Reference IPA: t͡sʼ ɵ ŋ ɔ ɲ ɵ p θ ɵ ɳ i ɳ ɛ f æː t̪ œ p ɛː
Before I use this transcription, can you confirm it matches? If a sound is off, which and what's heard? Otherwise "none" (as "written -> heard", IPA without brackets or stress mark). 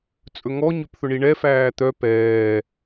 none